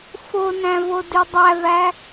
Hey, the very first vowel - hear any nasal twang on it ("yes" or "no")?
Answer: no